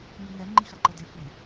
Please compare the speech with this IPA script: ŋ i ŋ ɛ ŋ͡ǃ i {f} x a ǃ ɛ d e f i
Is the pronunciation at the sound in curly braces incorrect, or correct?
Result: incorrect